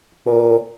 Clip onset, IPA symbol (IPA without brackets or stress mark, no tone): k͡p